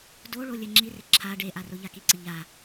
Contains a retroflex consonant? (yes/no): yes